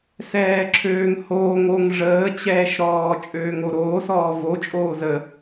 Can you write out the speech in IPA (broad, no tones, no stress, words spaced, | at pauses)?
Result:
sɛːǁʰøːŋhoː ŋoŋ ʐəːt͡ɕɛːʃɾɔː t͡ʃʼøːŋoɾoːsɔː vo t͡ʃʼoːzə